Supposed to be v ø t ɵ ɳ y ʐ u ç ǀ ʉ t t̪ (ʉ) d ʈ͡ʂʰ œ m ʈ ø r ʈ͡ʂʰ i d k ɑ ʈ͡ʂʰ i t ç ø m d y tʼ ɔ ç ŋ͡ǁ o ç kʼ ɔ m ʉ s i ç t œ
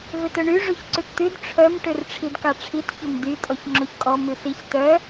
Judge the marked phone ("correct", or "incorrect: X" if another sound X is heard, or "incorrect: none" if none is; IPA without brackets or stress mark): correct